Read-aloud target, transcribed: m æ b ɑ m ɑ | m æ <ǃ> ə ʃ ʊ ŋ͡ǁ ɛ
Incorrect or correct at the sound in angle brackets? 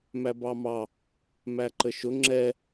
correct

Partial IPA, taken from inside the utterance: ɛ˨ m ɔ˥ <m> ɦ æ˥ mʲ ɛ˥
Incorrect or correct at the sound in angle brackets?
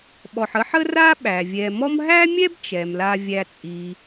correct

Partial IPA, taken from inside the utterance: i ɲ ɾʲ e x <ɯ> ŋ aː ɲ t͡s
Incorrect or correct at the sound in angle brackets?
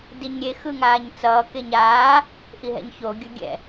correct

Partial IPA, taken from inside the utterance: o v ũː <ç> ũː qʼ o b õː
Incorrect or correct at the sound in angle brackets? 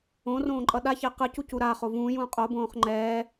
incorrect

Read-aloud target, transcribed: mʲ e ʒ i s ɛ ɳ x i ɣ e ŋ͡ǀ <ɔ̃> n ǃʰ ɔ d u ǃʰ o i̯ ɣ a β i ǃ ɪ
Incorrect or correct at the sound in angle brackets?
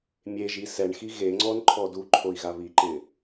incorrect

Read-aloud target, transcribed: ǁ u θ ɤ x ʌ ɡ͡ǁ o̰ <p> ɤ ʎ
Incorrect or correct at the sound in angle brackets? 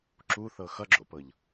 correct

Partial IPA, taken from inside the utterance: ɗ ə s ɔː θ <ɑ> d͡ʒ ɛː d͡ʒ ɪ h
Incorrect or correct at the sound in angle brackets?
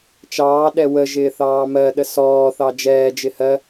correct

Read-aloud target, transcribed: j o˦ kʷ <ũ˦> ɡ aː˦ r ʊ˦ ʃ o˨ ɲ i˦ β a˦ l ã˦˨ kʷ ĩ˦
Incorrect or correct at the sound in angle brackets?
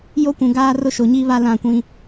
incorrect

